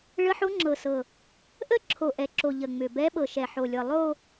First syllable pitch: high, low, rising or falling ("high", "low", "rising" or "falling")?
rising